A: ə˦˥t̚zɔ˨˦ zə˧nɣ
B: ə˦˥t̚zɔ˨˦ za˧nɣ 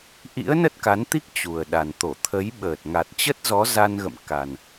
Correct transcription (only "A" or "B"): B